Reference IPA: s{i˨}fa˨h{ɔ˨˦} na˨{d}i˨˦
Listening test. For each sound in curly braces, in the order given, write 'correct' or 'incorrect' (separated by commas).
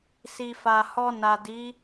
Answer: correct, incorrect, correct